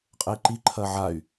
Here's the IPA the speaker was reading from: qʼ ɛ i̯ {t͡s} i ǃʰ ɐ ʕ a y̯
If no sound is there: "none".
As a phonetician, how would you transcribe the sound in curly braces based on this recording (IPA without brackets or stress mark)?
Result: ǃ